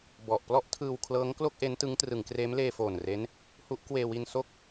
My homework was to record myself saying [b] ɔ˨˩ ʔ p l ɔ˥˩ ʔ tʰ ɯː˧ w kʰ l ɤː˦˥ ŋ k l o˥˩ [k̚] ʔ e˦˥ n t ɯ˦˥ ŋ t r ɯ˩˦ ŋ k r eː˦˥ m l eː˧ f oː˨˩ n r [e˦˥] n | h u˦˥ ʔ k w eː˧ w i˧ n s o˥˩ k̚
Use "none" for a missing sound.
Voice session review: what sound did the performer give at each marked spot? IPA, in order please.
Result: b, k̚, e˦˥

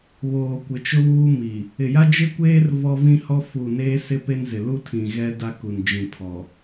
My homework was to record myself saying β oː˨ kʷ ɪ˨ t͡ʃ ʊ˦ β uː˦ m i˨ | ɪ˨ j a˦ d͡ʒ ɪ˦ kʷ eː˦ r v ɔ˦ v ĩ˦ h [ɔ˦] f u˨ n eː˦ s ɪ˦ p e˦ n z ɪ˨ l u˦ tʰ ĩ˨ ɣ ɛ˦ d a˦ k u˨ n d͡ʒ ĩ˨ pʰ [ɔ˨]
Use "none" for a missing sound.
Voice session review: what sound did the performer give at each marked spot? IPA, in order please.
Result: ɔ˦, ɔ˨

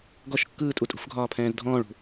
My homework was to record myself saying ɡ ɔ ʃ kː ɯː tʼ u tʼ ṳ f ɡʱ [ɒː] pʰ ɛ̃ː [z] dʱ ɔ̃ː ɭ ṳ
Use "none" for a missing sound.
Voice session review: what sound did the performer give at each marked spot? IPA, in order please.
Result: ɒː, z

